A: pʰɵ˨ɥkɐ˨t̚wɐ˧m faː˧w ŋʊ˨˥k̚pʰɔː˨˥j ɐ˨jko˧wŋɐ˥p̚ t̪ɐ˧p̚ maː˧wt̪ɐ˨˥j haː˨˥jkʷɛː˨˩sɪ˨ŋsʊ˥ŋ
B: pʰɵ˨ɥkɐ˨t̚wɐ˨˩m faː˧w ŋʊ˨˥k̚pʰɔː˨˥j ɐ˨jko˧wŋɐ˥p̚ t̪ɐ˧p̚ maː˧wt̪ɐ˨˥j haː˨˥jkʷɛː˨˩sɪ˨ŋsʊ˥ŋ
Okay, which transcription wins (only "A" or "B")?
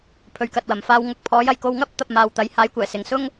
B